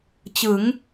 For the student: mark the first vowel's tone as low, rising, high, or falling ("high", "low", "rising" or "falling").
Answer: rising